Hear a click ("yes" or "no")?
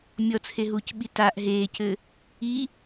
no